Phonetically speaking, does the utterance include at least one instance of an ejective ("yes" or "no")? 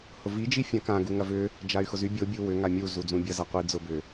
no